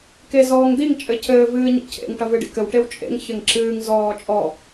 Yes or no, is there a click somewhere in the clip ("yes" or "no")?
yes